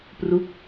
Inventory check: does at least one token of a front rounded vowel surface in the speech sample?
no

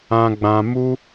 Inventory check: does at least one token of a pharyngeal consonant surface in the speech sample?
no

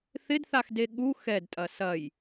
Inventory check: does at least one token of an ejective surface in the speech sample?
yes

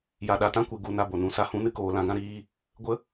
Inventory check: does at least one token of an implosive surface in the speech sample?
yes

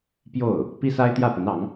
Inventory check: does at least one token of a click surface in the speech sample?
no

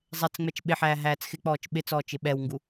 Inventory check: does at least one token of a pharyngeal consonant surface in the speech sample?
yes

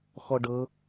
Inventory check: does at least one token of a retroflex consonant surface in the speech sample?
yes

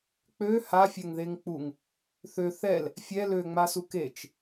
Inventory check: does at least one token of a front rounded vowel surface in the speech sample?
yes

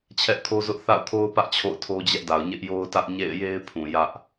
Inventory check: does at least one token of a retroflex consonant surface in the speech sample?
no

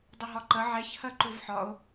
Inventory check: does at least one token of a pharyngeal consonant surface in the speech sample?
yes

